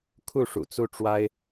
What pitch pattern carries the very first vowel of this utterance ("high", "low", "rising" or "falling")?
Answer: falling